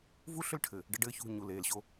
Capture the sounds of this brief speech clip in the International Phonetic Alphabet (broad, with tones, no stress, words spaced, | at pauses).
vu˦ ɬʏ˦lʈʰɘ˨ | ɖə˦ɖɘː˦çṳ˦˨ ɲu˨leː˨lɕo˦